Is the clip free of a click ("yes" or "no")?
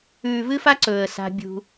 no